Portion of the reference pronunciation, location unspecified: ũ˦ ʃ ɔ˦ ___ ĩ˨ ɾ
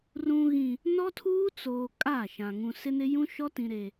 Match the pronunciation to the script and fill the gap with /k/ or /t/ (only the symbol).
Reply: t